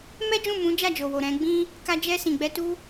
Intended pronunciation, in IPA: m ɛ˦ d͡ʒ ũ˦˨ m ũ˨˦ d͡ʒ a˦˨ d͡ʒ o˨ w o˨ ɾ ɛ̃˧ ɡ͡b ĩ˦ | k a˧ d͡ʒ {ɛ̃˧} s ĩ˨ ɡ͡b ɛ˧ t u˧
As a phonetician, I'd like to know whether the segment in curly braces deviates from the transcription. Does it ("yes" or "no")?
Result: yes